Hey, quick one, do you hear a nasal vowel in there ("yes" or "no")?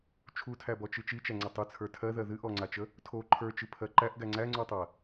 no